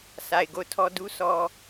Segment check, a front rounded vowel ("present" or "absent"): absent